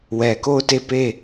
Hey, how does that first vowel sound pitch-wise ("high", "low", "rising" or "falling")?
low